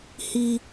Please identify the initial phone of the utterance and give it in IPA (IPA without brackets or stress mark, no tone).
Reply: h